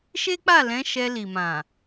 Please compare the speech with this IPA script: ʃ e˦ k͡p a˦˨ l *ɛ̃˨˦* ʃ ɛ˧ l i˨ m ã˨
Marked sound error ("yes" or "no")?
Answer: no